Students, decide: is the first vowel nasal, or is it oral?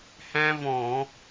nasal